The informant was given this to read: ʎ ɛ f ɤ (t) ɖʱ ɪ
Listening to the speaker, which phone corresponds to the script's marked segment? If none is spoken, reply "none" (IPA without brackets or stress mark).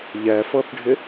θ